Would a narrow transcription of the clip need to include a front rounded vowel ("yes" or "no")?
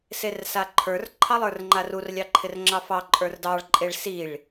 no